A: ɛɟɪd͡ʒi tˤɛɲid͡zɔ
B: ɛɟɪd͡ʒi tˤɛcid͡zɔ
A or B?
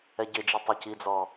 B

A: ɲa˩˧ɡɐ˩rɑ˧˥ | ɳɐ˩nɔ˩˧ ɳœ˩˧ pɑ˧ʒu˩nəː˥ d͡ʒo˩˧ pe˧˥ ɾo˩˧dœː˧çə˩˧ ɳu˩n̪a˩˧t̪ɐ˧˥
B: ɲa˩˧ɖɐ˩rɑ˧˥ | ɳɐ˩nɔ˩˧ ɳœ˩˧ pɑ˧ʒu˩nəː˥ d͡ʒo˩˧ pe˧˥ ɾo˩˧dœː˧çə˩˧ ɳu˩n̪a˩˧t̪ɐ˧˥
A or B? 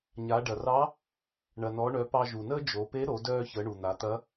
B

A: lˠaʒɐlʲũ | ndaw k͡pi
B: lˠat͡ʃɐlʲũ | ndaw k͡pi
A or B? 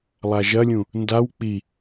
A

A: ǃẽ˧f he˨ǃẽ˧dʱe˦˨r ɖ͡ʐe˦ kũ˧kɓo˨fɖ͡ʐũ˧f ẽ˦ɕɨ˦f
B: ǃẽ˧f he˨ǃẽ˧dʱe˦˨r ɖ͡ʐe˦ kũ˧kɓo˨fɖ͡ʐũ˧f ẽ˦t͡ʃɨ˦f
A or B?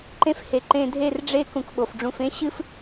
A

